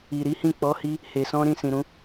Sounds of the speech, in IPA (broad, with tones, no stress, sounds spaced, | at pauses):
i˨ ɾ i˨˦ h ĩ˦˨ k͡p ɔ˨˦ h i˧ | h e˨ s ɔ̃˧ ɾ ĩ˧ s ĩ˨ ɾ ũ˨˦